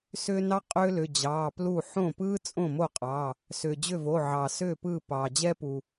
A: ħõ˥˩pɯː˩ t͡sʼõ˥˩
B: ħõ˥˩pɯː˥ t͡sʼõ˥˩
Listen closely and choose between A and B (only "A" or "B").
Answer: B